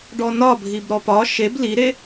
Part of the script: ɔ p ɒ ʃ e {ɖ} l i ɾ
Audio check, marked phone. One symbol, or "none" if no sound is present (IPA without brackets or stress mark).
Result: b